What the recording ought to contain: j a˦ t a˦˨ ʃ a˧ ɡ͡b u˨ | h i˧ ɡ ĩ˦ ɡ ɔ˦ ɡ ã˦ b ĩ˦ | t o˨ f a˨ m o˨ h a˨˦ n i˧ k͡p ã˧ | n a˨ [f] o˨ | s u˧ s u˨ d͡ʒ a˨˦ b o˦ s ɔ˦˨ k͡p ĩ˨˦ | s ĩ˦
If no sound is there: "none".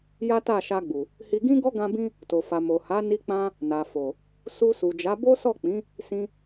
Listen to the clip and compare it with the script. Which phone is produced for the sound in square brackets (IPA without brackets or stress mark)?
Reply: f